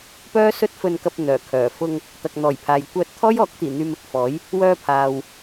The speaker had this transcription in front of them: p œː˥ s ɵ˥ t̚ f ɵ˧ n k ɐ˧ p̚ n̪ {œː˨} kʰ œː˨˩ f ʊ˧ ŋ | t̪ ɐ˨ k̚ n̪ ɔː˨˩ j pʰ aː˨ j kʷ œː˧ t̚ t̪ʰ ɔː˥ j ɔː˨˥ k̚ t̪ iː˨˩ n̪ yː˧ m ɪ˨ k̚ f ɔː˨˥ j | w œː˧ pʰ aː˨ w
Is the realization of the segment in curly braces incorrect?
yes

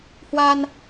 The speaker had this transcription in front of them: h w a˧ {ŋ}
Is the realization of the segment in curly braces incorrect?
yes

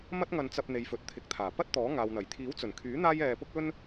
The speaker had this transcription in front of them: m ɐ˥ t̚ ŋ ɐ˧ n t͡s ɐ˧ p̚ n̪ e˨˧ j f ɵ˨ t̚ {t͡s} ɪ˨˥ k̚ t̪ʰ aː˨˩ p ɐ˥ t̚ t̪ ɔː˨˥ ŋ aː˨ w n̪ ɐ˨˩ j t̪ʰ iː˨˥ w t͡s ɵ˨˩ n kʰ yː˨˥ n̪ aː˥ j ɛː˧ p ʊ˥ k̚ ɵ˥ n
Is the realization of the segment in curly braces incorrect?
yes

